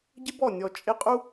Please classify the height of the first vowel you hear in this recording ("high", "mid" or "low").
high